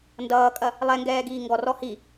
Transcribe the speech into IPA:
n d ʌː kʼ ɐ | lˠ ɛ ŋ ɡ ɛː ɡ iː ŋ ɡ ɔ r ɔ h i

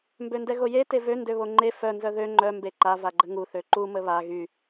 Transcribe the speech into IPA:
m b ø n d ɛ ɣ o j e t e v ø n d ø β o ŋ͡ǃ e f œ n z œ ð ø ŋ͡ǃ œ m b e ǃ a v a ɡ͡ǃ ə ŋ u θ ø ǃ u m ə β a ɣ y

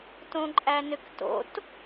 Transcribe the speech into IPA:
t õ ǃʼ æ n ʏ k t o̰ t

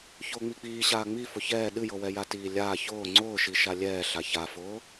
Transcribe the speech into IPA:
ç ʊː ŋ͡m i k͡p iː ɕ aː ŋ͡m i f ʊ ç ɛː ɗ ɨ j ɤ w ɛ j a t iː lʲ aː ç ʊː ŋ͡ǀ ʊː ʃ i ʃ a lʲ ɛː ɬ a ç a f ʊː

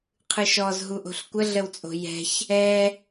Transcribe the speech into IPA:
qʰ ɯ ʃ ɔ z ɦ u ʔ o̤ ɬ kʷ ə ɮ ə w t͡sʼ o̤ j ɛ̤ ç | ɛ

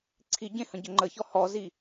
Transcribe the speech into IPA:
ǀʰ i ɟ ẽ h ə̃ ɟ ə ŋ͡ǃ ə ç ɔ h ɔ z i

